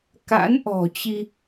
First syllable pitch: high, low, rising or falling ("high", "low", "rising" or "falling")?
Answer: rising